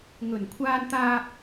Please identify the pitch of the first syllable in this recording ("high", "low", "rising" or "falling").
low